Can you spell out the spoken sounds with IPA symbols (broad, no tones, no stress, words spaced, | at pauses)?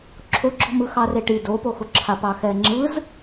ǁʰoɡ͡ǁɔ̤mɯxɑ reʈi dopoxʊǁʰa pɑxɛŋ͡ǁɯz